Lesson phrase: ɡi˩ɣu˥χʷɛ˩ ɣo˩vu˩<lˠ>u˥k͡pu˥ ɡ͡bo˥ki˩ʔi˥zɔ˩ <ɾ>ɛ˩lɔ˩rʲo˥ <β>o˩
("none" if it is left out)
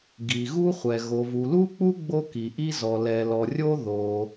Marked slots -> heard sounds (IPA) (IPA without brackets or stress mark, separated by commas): l, l, ð